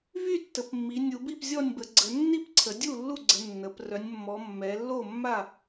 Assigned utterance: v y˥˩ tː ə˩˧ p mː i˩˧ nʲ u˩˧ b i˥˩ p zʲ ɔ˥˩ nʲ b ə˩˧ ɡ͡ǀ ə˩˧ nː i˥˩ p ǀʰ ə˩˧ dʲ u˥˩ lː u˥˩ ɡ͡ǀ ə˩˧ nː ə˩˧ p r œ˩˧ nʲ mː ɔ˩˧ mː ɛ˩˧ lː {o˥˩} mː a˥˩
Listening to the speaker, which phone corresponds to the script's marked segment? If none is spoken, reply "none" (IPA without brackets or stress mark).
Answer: o˥˩